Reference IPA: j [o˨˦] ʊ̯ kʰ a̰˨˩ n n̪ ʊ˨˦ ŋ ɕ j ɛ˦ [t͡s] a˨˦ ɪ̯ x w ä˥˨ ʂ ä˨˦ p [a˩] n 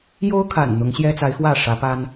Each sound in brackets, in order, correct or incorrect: incorrect, correct, incorrect

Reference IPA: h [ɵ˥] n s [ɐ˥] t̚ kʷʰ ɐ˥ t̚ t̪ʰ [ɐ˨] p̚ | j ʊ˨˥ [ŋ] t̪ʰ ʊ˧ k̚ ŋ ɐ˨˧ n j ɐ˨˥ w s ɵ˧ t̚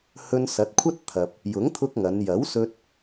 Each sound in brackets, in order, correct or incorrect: incorrect, incorrect, correct, correct

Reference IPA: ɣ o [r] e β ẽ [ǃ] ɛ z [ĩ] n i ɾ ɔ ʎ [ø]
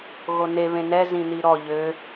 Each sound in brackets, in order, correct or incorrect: incorrect, incorrect, correct, correct

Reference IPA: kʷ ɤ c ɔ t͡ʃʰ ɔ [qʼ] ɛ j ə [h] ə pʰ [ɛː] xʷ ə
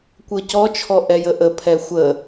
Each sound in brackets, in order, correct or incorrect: incorrect, incorrect, incorrect

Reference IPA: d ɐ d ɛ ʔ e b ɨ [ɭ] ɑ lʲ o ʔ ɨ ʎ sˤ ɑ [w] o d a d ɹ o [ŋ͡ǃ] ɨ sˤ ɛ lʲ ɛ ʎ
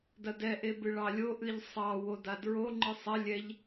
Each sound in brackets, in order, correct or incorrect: correct, correct, correct

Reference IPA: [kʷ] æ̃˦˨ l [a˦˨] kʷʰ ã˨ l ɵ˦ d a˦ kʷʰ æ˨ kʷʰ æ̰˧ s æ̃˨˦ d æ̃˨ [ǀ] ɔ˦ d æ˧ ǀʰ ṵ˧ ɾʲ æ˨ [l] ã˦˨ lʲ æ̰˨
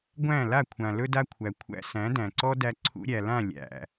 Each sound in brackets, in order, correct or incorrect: incorrect, correct, correct, correct

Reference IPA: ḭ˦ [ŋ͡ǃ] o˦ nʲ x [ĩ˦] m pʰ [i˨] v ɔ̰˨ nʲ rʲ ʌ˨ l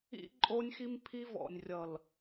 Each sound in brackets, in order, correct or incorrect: incorrect, incorrect, incorrect

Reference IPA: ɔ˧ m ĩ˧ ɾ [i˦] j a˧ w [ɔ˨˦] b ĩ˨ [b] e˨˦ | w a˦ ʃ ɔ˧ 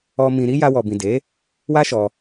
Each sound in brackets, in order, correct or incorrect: correct, incorrect, incorrect

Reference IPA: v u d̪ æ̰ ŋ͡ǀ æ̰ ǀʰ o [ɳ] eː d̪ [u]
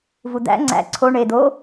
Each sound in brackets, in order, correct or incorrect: correct, incorrect

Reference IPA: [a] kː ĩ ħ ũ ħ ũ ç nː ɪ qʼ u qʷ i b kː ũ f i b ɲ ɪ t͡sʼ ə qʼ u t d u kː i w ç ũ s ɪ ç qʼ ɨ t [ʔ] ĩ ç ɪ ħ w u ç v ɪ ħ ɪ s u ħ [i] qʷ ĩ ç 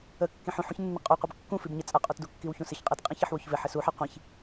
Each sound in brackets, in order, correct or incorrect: incorrect, incorrect, incorrect

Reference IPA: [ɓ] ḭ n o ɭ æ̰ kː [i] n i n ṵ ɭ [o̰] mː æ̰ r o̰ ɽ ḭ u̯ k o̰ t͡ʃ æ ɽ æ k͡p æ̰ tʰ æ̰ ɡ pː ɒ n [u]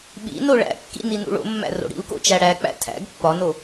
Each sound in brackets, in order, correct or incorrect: correct, incorrect, correct, incorrect

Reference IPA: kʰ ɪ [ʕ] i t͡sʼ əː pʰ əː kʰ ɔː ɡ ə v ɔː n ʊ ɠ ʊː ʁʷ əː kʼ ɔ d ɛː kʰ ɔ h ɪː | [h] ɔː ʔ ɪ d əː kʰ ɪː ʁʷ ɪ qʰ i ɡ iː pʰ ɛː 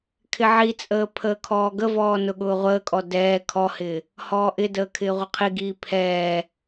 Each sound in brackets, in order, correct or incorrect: correct, correct

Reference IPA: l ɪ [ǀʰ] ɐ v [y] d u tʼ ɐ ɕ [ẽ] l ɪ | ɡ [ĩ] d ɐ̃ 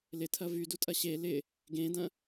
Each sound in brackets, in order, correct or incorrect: incorrect, correct, incorrect, incorrect

